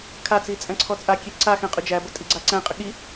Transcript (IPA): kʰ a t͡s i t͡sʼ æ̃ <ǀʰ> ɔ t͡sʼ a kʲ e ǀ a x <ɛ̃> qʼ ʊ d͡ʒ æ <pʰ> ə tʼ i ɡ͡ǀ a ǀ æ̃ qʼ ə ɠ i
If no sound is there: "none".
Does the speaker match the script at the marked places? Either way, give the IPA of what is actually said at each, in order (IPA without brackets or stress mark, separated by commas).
ǀʰ, ɛ̃, b